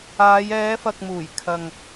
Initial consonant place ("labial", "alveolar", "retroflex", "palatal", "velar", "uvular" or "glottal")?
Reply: palatal